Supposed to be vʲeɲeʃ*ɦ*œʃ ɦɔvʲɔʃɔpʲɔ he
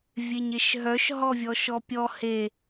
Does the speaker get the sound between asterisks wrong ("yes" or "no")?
no